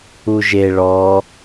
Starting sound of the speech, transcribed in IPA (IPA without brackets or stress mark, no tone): u